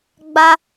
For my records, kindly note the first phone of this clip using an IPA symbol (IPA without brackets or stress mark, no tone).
ɡ͡b